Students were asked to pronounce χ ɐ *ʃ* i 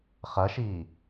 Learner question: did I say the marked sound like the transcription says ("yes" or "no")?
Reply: yes